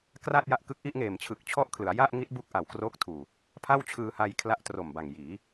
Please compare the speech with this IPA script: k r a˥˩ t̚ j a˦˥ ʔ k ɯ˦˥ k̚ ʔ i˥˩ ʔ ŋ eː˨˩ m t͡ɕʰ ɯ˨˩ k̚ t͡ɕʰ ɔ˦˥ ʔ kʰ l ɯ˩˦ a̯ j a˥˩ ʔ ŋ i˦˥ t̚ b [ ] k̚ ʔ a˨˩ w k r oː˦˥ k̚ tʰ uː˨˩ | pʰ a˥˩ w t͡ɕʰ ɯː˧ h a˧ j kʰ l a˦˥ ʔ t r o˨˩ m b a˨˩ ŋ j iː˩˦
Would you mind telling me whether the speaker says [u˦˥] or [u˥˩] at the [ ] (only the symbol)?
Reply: u˦˥